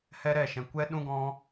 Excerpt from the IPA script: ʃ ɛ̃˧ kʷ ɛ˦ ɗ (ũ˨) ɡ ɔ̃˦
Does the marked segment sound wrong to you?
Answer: yes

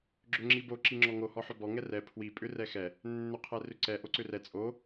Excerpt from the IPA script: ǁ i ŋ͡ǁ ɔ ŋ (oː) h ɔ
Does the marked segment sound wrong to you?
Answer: yes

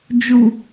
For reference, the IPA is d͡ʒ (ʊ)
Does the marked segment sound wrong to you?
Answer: yes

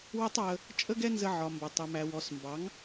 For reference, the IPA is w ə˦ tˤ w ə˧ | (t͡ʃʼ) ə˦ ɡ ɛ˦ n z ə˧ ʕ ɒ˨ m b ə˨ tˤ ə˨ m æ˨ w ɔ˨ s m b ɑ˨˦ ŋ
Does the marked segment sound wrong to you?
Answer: no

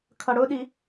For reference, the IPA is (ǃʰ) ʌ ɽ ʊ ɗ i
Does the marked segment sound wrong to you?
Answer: yes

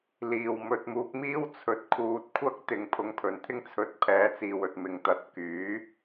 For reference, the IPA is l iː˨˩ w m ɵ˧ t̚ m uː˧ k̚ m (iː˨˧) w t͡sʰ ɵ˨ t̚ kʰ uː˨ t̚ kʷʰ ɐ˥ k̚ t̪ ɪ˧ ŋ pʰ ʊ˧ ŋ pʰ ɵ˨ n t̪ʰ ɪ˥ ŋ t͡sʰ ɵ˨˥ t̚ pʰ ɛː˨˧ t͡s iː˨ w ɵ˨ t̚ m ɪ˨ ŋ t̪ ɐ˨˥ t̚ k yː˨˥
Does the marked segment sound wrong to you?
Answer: yes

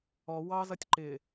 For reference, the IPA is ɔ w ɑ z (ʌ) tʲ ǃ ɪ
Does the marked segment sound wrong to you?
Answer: no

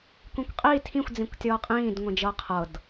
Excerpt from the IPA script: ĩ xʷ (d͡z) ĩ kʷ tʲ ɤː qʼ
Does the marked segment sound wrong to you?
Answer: no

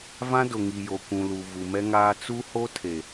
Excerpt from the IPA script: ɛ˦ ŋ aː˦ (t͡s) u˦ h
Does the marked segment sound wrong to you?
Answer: no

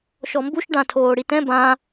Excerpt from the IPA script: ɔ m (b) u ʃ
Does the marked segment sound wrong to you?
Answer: no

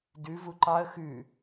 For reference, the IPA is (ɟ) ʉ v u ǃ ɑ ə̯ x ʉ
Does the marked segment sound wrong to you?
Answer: yes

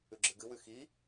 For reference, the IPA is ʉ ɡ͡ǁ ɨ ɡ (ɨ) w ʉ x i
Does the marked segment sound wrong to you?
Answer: no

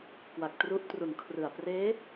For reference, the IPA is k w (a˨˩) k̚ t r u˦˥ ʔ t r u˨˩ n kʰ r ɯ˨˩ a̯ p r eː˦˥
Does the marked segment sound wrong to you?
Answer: no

